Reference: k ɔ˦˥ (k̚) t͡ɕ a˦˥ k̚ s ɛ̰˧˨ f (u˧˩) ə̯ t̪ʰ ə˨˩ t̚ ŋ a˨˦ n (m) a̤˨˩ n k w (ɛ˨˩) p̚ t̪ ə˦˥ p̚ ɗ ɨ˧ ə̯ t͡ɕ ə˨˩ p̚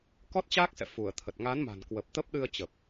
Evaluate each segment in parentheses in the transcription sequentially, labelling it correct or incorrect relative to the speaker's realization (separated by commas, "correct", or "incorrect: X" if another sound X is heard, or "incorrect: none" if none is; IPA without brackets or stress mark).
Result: incorrect: t̚, correct, correct, incorrect: ə˨˩